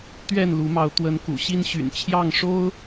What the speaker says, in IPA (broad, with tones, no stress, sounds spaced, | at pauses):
t̪ ɥ ɛ˥˨ n l u˨˦ m ɑ˨˦ ʊ̯ t̪ w ə˨˦ n k ṵ˨˩ ɕ i˦ n ɕ y̰˨˩ n t͡ɕʰ j ɑ˥˨ ŋ ʂ o˦ ʊ̯